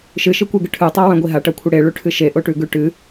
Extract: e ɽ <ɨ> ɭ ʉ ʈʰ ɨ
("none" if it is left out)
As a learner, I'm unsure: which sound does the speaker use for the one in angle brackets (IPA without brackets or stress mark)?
e